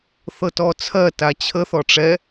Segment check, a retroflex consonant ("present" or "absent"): present